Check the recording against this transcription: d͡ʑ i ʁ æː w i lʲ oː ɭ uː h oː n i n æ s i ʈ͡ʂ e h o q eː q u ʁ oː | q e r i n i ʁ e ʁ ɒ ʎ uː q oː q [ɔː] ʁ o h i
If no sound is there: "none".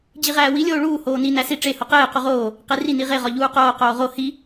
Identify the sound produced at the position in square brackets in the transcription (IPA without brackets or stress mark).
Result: oː